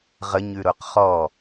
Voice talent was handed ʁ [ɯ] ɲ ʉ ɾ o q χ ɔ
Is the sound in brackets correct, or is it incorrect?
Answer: incorrect